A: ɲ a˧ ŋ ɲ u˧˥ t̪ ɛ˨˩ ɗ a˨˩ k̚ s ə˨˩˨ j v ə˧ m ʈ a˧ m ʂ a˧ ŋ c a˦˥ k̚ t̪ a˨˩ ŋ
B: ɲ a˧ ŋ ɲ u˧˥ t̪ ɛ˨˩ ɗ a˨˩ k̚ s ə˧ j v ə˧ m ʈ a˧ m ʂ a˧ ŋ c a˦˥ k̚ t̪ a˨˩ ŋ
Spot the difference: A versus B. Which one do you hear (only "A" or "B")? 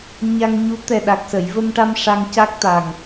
A